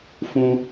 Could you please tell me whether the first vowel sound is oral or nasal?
nasal